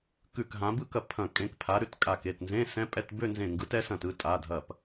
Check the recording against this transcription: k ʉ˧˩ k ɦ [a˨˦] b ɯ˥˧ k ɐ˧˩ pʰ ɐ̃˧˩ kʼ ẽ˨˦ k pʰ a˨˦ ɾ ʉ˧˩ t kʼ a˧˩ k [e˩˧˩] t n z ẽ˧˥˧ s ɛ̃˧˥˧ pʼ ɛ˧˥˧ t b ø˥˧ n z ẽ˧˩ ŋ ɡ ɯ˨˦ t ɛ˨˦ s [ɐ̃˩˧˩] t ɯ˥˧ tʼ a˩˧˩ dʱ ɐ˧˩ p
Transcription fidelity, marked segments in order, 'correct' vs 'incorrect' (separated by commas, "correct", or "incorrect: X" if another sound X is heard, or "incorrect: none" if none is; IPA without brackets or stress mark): incorrect: ã˨˦, correct, incorrect: ɐ̃˧˩